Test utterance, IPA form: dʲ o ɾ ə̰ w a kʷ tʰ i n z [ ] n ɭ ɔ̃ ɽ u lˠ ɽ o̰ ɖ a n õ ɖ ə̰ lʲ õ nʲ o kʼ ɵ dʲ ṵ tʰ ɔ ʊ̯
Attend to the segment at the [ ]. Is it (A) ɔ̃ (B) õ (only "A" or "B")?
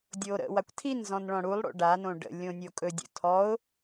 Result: A